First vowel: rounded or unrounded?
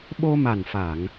rounded